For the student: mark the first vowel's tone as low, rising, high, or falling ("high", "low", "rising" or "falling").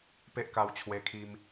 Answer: high